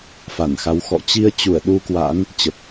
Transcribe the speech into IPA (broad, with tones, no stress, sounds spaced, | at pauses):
f a˧˩ n x a˨˦ w x ɔ̰˧˨ t͡ɕ i˧ ə̯ t͡ɕ u˧˩ ə̯ ɗ u˧ k w a̰˧˥ n | t͡ɕ ə˨˩ p̚